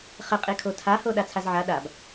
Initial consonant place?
uvular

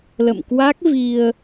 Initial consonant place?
alveolar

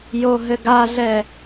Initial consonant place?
palatal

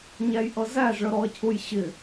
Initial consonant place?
palatal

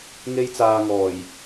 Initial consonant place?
velar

